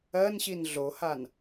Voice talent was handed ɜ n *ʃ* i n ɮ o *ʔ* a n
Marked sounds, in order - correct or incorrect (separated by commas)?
incorrect, incorrect